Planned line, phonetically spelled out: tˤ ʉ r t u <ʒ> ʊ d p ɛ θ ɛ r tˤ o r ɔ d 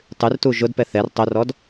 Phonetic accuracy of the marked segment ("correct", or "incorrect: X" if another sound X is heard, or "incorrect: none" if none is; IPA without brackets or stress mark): correct